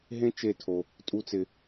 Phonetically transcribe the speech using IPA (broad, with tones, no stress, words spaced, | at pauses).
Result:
ɦẽ˦t͡ʃe˦˨tʰo˦ | tʼu˦t͡sɪ˦